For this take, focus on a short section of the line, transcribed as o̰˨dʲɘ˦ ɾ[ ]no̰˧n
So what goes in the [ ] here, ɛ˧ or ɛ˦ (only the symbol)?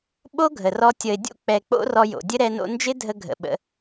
ɛ˧